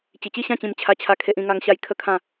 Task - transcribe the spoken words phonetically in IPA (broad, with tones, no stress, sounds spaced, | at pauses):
t͡ɕ i˨˩ t͡ɕ i˥˧ ɕ ã˥˧ t͡ɕ ĩ˧ m t͡ɕʰ a˧ t͡ɕʰ a˥˧ kʰ e˦ ʔ ĩ˦ ŋ a˦ ŋ ɕ a˥˧ j kʰ ə˦ kʰ ã˥˧